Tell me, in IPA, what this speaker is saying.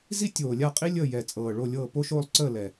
z i˥ tʲ oː˨˩ lʲ a˥˩ qʼ i˥ lʲ əː˥˩ j ɛ˨˩ t͡sʼ ɤː˨˩ ɭ o˥˩ lʲ ɤː˥˩ p o˥˧ ʃ oː˥˩ lˠ ǀ əː˥˩ l ɛ˨˩

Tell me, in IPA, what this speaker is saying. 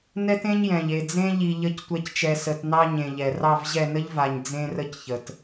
n ɛ˦ t ẽ˦ ɲ j ɛ̃˨ ʎ e˨ d͡z ẽ˦ ʎ i˨ ʎ ə˨˦ c tʷ ɛ˨ c t͡ʃ ɛ˨ s ə˨ t n ɑ˦ ɲ ẽ˨ ʎ ɛ˨ r ɑ˦˨ v ʑ ɛ˦˨ n ə˦ ʎ v a˨ ɲ d͡z ẽ˦ r ə˦ c ç ə˨ t

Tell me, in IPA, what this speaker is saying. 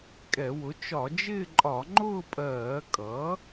kʼ ɛ˧˩˧ w ʊ˩˥ t͡ʃ ɒ˧˩˧ d͡ʒ ɪː˥˧ ǃʼ ɒ˧˩˧ ŋ͡ǃ ʊː˥˧ pʼ ɜː˧˩˧ kʼ ʌ˩˥

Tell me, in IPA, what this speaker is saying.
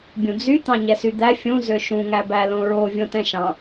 bʲ ũ d͡z y t̪ ɑ̃ ɲ ɛ s y d̪ æ fʲ ũ z ø ʃ ũ ŋ æ b æ l õ ɹ o vʲ õ t ɛ̃ ʃ ɑ̃

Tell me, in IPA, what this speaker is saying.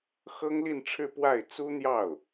x ɤ˥ ŋ l i˥˧ n ʈ͡ʂʰ ɻ̩˥˧ p w a˥˩ ɪ̯ t͡s u˥ n̪ j ɑ˥˩ ʊ̯

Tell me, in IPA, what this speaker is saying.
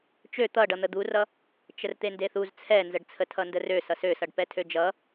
t͡ʃ ø t̪ ʌ ɖ ʌ n̪ ə d̪ u r ʌ | t͡ʃ ə r t̪ e n d e θ u z t͡sʰ ɛ n z ə ɖ t͡sʰ ə tʰ ʌ n d ə r ø s ʌ s ø s ʌ ɖ p ɛ tʰ ø d͡ʒ ʌ

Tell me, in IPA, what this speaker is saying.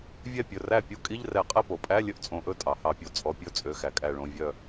vʲ ɛ˥˩ pʲ ɵ˩˧˩ r æ˥˩ pʲ u˧˥˧ kʼ i˧˥˧ ʎ r ɛ˧˩˧ qʼ ɛ˥˩ p o˩ pʼ æ˧˥˧ lʲ ɵ˥˩ ʔ t͡sʼ õ˧˩˧ ʔ ɵ˥˩ tʼ ɑ˩ h ɑ˧˩˧ pʲ o˩ t͡sʼ ɔ˩˧˩ pʲ ɵ˧˥˧ t͡sʼ ø˩˧˩ x æ˩ kʼ æ˧˩ ɭ õ˩˧˩ vʲ œ˧˩

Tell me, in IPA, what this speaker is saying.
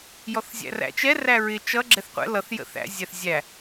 j ɔ θ zʲ æ̰ r æ̰ t͡ʃ ɛ r æ ɹ ɪ t͡ʃ ʌ ɡ͡ǁ ɛ θ qʷ ɛ̰ l ʌ θ j ə̰ θ æ̰ zʲ æ θ zʲ æ

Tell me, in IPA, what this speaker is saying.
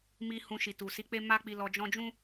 m i˦ h ũ˧ ʃ i˨ t u˨ s i˧ k͡p e˦ m a˦ k͡p i˧ l ɔ˧ d͡ʒ ɔ̃˦ d͡ʒ ũ˦

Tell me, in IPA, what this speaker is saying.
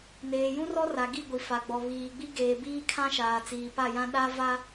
n eː˨ j ũ˦ r ɔ˦ r a˨ ɡ i˦˨ ɡʷ i˨ f a˨ ɡ͡b ɔ˨ β iː˨ ɡ͡b i˦ ɡ eː˨ b iː˦ kʰ ã˦ ʃ aː˨ t͡s iː˨ p a˦˨ j ã˦ ɗ a˦ v a˦

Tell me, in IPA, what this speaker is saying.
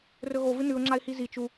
r ɵ ɣ o v ɨ n ʉ ʊ̯ ŋ͡ǁ a ɪ̯ h i z i t͡ʃ u

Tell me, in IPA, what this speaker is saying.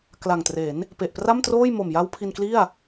k l a˨˩ ŋ t r e˩˦ n | p e˨˩ ʔ p r a˥˩ m t r oː˥˩ j m o˨˩ m j a˦˥ w pʰ i˧ n k l i˥˩ a̯

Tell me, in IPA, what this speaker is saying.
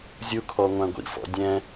zʲ u kʰ ɔ ŋʷ æ̃ ɡʷ ḭ f ɔ̰ dʲ ɛ̃

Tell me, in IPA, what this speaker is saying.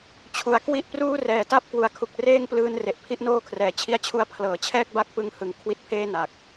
t͡ɕʰ u˩˦ a̯ k w i˦˥ ʔ p r uː˥˩ r ɛː˨˩ t a˥˩ p̚ k w u˨˩ a̯ kʰ u˨˩ k̚ r eː˥˩ ŋ p l ɯː˧ n r e˨˩ ʔ pʰ i˦˥ ʔ n oː˥˩ kʰ r ɛː˨˩ t͡ɕʰ i˧ a̯ t͡ɕʰ u˧ a̯ pʰ l ɤː˩˦ t͡ɕʰ ɛː˥˩ k̚ b a˥˩ k̚ p ɯ˧ ŋ h ɯ˩˦ ŋ kʰ w i˦˥ t̚ pʰ eː˥˩ n a˨˩ k̚

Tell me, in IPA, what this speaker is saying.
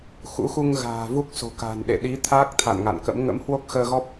x ṵ˧˥ x u˧ ŋ ɣ a̤ː˨˩ v u˦˥ k̚ s o̤˨˩ k a̤˨˩ n ɗ ḛ˧˨ ɗ i˨˦ t̪ʰ aː˦˥ k̚ t̪ʰ a̰˧˨ n ŋ a̰˧˨ n k ə̰˧˥ m ŋ ə̰˧˥ m h w o˦˥ k̚ x əː˧ ɣ ɔ˦˥ p̚

